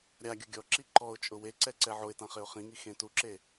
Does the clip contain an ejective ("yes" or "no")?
yes